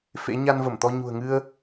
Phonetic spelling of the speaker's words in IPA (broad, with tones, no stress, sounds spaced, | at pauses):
f ḛ˧˥ ɲ a˧ n v ə˧˩ m t̪ ɔ˧ ɲ ṳ˨˩ ə̯ ŋ ɨ˧ ə̯